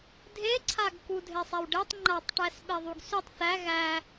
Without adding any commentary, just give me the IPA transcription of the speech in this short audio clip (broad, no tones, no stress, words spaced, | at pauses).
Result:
dʱeǀʰaɡ kudʱesˤɛwɖetˤ ŋ͡ǃatˤʈæs ɓeðˤuɡsytˤ θæ ɣæ